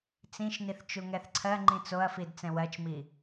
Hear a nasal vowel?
yes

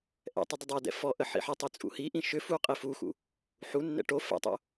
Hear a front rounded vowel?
yes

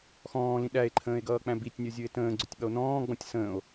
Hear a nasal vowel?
yes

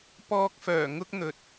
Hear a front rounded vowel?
yes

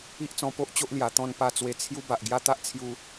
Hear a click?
no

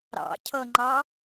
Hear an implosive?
no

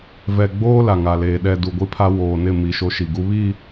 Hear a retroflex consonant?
no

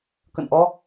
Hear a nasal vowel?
no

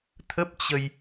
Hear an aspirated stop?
yes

